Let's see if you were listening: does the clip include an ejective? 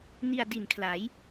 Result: no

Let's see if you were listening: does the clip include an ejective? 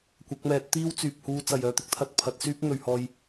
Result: no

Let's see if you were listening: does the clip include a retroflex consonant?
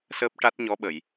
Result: yes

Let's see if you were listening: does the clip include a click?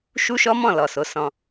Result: no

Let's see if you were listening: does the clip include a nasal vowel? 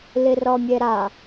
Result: no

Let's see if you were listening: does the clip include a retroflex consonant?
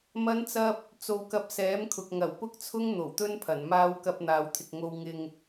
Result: no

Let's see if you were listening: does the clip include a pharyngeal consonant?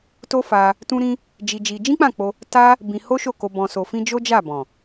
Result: no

